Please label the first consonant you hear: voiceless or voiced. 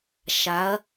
voiceless